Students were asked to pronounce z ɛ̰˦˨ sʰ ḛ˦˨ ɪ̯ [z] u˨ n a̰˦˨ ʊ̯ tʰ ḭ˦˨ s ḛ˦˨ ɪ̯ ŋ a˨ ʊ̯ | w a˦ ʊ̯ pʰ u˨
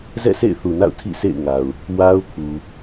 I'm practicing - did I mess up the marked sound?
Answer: yes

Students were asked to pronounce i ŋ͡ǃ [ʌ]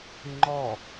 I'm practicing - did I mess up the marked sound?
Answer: yes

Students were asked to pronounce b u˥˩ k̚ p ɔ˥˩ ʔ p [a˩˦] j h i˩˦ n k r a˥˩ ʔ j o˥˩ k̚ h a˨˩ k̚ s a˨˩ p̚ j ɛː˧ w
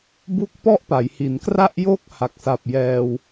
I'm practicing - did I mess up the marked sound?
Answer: no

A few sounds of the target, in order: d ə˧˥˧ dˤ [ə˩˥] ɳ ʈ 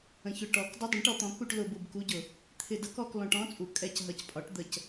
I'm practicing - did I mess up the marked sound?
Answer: yes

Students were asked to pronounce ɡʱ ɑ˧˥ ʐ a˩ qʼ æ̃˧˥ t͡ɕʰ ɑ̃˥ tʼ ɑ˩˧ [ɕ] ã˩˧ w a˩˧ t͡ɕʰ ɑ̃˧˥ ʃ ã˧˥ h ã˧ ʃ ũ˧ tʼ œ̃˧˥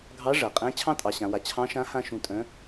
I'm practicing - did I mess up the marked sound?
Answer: no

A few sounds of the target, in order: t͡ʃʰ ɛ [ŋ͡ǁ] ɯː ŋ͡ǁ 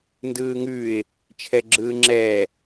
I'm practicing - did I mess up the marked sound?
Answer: yes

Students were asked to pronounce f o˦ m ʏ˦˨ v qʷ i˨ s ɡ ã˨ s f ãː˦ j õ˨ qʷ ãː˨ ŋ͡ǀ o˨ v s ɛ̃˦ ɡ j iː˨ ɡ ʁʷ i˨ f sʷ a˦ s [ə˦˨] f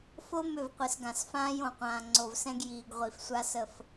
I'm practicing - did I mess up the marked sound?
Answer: no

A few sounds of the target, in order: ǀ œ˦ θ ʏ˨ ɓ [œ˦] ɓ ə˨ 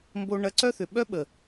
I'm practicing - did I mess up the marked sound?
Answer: no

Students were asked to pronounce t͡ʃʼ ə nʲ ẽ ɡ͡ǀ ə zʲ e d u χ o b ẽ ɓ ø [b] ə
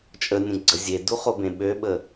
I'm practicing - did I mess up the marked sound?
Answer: yes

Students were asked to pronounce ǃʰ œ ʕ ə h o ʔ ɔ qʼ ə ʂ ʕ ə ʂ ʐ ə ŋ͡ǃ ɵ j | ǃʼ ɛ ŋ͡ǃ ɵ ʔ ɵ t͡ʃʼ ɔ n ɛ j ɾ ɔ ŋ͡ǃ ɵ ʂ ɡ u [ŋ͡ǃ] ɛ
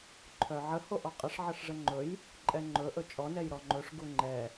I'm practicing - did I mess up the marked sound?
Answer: no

